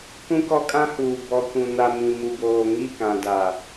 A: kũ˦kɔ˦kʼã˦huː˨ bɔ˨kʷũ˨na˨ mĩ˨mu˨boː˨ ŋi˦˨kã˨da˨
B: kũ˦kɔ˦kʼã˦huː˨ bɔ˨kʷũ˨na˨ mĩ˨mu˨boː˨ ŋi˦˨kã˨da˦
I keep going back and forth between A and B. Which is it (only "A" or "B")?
A